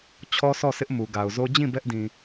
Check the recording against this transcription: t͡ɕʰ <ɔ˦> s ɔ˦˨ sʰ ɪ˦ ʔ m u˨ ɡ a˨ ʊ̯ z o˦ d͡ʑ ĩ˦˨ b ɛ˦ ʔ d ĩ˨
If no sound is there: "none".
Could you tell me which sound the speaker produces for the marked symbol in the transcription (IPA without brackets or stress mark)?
ɔ˦